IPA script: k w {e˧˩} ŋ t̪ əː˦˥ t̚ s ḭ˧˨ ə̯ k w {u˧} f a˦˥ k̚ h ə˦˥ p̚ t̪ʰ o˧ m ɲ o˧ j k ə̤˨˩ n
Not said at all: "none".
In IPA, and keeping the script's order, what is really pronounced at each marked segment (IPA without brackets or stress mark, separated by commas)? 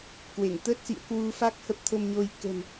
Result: e˧˩, u˧